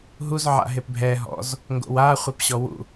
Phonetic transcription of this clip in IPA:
ɦ u z ʕ a̰ ɦ e p bʱ ɛ ɦ ɔ̰ z | ŋ ɡ o̰ w a χʷ e p ɕ ɔ w ṵ

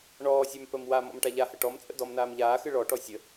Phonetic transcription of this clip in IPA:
ɳ ɔː sʲ a m p ə m w a m ɔ̰ m ʈ a ʎ a h ə ʈ ɔ m t͡sʼ ə̰ d ɔ m n aː m ʎ aː x ɨ ɭ ɔ ʈ ɔ sʲ ə

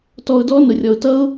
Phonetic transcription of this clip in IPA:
t ɔ˧ ʊ̯ d ɔ˦ n ʊ˧ rʲ ɔ˧ ʊ̯ t ʌ˦ ʊ̯

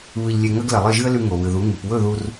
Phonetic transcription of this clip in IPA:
β ɨ˧ ʎ lʲ e˧ ŋ ɐ˦ ɡ l ɐ˨ lˠ ɨ˦˨ ʒ ɨ˦ ə̯ l ʉ˧ ŋ o˨ β ɨ˨ ð u˨˦ ŋ ɨ˨ p w ɵ˦˨ ð u˧ r

